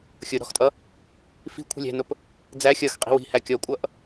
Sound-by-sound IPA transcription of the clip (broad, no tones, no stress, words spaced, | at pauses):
xʲʊ ɾɔ̤xtʼʌ | fi̤ kʷʰi̤lʲæ̤nʊp | d͡zæ xʲʌx qʼi̤wi̤hæ kʲɔkʷʼʌʔ